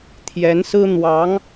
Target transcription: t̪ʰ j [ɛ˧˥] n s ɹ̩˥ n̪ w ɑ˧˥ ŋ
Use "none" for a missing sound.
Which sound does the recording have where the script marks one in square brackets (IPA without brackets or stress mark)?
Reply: ɛ˧˥